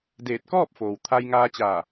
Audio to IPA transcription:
d eː˧˩ t̚ k ɔː˥˨ p̚ f oː˩ w t̪ʰ a˧ j ŋ aː˧ t͡ɕ aː˧˩

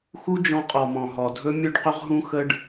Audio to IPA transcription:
x u˦ d͡ʒ ɔ̃˧ qʼ ɔ˨ m ɔ̃˨ ɦ ɔ˨ dʱ ɵ˦ mʲ ɵ˦ ɖ q ɵ˦ ʁ ɦ ũ˦ x ə˦ ɖ

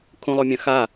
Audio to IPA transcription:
kʰ ũ lˠ o mʲ œ̃ x a

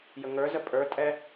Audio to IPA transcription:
j ə ŋ ə˞ z ə pʼ ə˞ tʼ ɛ

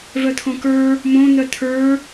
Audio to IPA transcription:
v œ t̪ʰ õ k ə˞ | m õ n̪ œ t̪ʰ ə˞

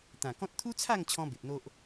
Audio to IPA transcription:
t̪ ã˨˩ k ɔ̃˦ t̚ t̪ʰ u˦ t͡sʰ a˥˧ ŋ t͡ɕʰ ɔ̃˦ b e˨ p̚ n̪ o˦ ʔ

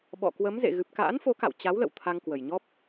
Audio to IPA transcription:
ɓ ɔ̰˧˨ k w ə˨˦ m z ḛ˧˨ ɣ ɨ˨˩ p̚ k a̰ː˧˥ n f o˨˦ k a̰˧˨ w t͡ɕ a˨˦ w l ə̰˧˨ w t̪ʰ a˧ ŋ k w ə˨˩ j ɲ ɔ˦˥ p̚

